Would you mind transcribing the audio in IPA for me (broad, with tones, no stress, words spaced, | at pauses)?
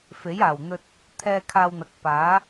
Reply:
fe˨˥jaː˨˩wn̪ɵ˧t̚ | t̪ʰɛː˧ kʰaː˧wn̪ɐ˨k̚ paː˨˥